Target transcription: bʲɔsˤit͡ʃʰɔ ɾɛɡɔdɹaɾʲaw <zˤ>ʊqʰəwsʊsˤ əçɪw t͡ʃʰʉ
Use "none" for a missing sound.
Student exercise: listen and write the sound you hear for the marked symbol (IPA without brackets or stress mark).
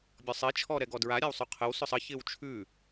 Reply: sˤ